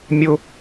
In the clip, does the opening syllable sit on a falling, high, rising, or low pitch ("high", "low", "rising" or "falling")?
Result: high